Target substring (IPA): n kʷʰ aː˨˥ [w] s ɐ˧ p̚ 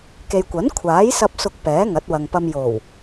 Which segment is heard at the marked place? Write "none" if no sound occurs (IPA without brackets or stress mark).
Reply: j